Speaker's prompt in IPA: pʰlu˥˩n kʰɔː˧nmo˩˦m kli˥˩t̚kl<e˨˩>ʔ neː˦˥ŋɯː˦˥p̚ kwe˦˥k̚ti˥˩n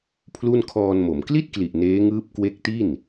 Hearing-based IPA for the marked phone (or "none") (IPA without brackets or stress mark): i˨˩